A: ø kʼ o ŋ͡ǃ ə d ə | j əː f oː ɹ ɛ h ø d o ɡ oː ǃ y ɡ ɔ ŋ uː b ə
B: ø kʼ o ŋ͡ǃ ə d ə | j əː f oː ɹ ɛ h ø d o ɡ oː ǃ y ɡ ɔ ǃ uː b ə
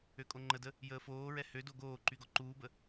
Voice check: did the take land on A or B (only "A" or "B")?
B